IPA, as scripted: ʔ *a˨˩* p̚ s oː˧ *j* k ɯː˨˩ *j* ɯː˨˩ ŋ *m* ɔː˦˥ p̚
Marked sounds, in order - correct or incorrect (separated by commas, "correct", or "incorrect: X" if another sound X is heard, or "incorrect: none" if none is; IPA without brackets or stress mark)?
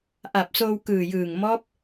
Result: correct, incorrect: w, correct, correct